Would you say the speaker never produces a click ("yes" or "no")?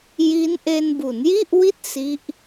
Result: yes